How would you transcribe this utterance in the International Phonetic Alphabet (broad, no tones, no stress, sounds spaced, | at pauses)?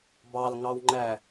b ɑ l ŋ ɑ w ŋ͡ǃ æ